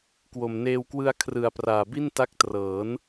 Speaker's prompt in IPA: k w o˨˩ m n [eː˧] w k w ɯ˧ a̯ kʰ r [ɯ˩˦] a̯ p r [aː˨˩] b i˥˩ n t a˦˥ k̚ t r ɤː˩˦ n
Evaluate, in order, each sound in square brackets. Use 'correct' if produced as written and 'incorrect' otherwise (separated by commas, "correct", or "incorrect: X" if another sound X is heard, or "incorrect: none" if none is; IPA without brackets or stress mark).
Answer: correct, correct, correct